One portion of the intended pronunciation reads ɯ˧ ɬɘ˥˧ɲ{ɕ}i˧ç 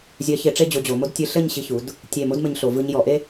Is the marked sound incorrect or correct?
correct